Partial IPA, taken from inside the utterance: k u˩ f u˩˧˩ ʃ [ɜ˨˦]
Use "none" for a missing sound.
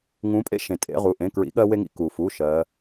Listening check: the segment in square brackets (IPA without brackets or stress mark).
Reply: ɜ˨˦